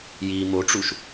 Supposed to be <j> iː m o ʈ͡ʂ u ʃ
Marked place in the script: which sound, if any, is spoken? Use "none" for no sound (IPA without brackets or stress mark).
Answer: j